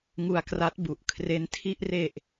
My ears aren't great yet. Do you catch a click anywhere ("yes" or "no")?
no